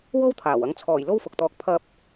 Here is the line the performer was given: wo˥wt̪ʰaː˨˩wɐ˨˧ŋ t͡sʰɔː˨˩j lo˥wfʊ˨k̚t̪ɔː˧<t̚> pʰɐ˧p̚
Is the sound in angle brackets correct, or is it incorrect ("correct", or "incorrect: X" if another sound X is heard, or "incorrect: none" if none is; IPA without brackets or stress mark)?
incorrect: k̚